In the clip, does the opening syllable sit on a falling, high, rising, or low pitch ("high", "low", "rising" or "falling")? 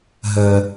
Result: low